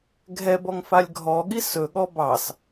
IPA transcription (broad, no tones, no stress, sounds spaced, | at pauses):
ɡʱ ɛ b ɔ ŋ f a lʲ ɡʱ ɔ ɠ i s ɵ ɠ ɔ b ɑ s